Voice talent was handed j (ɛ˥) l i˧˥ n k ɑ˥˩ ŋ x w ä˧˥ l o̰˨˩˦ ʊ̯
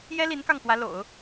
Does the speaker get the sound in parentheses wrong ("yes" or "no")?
no